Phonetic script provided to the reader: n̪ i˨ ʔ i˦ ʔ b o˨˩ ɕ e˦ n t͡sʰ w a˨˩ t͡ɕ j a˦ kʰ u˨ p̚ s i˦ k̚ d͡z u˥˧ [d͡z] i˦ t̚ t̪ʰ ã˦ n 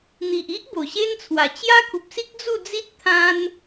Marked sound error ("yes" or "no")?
no